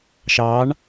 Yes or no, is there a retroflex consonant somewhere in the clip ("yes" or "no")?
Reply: yes